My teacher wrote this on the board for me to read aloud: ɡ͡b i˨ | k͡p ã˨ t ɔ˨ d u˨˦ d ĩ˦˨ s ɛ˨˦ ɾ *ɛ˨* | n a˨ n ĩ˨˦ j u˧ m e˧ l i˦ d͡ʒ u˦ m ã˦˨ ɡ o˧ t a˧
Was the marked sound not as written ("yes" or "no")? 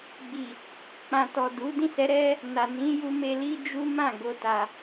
yes